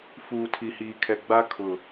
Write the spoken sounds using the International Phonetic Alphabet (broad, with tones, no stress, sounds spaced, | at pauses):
f uː˨ tʰ i˨ h iː˨ kʰ ɛ˨ ɡ͡b a˦ kʰ ʊ˨